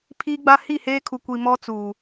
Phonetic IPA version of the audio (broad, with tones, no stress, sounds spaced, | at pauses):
pʰ i˦ ɡ͡b a˦ h i˦˨ h eː˦ kʰ u˨ kʷ i˨ m ɔ˦ t͡s u˨